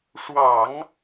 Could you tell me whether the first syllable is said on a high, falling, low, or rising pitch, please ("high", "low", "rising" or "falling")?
low